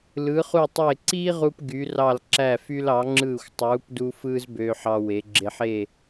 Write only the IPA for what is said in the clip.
l ɯ˩˧ χ u˧˩ tˤ e˧˩ ǀ iː˥ ʁ u˧ p ɡ y˩˧ r ɑ˧˩ l ǁ æ˧˩ f y˧ l ɑ˩˧ ŋ͡ǁ ɯː˧˩ xʷ tˤ uː˩˧ p d u˧ f ɯː˥ z b øː˧ ħ ɑ˧ w e˩˧ ɡ͡ǁ e˧ ħ e˥˧

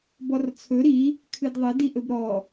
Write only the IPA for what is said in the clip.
b ɔ r t͡sʰ ɵ ɾ i | kʰ ɨ d ðˤ ɘ d i ʔ ɵ b ɾ ɔ

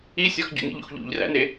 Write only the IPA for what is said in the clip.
i sʲ ɒ x ɟ ṵ n ḭ ʎ ṵ x ʎ ṵ ʎ r æ̰ n e

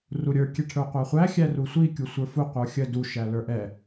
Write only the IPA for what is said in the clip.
r u ɾʲ ə˞ kʲ ɛ ʈʰ ə˞ qʷ æ χʷ æ xʲ æ r u sʷ i kʲ u sʷ ə˞ f u qʷ ə˞ xʲ ə d u ʃ æ l ə˞ ʔ ɛ

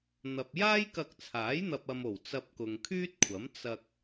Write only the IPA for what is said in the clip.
n̪ ɐ˨ p̚ j aː˥ j k ɐ˧ k̚ t͡sʰ aː˨˥ j n̪ ɐ˨ p̚ ɐ˨ m o˨˩ w t͡s ɐ˧ p̚ k ʊ˨ ŋ kʰ yː˥ t̚ kʷʰ ɐ˨˥ m t͡s ɐ˧ k̚

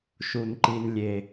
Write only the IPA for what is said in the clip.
ʃ u˨ n ǃ i˨ n lʲ e˨

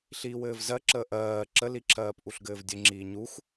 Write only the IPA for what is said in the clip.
ɬ iː w ɘː v z ɜ ǁ əː ʔ ɜː ǁ ə l i ǁʰ ɜː p ʔ u ɬ ɡ ɘː v dʲ ɘ ŋ͡ǁ iː ɲ u x

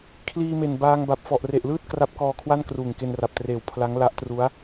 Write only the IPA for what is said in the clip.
kʰ l iː˧ m e˨˩ n b aː˧ ŋ b a˨˩ p̚ f ɔ˨˩ ʔ r e˨˩ ʔ l ɯː˥˩ t̚ k r a˦˥ p̚ k ɔː˧ kʰ w a˥˩ n k r uː˨˩ ŋ k e˧ n r a˨˩ p̚ t r eː˨˩ w pʰ l a˦˥ ŋ l a˦˥ ʔ t r u˦˥ a̯

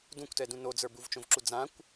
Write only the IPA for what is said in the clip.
d ũ kʷ t ɛ d ũ n o d͡z ə˞ b u v t͡ʃ õ v ǁ u d͡z ã kʷ

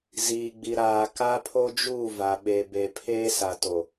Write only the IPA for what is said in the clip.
z iː˨ ɡ͡b i˨ ɾ aː˨ k a˦ pʰ o˦ d͡ʒ uː˦˨ v a˨ ɓ e˨ b e˨ pʰ eː˦ s a˨ t o˨

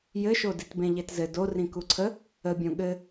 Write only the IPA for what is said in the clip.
j ɘ ʃ o d i t b ẽ ʎ e t z ɘ d o r ĩ k u ǀʰ ə | ə bʲ õ ɠ ɘ

